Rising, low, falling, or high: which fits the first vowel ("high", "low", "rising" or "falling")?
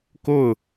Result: falling